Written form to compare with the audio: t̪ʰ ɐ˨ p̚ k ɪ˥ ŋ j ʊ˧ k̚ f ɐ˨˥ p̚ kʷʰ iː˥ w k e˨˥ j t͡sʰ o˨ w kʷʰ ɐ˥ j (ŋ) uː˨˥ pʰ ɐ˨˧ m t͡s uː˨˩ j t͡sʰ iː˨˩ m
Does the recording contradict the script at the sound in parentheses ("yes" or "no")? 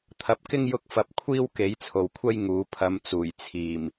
no